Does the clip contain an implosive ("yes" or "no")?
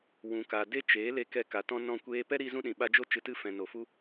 yes